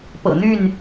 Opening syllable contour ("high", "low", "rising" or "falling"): low